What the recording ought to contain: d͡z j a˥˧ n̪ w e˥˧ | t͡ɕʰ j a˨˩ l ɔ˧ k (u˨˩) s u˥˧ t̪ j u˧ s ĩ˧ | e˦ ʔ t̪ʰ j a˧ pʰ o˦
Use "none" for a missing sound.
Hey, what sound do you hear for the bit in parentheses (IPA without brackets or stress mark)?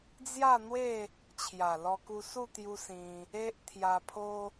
u˧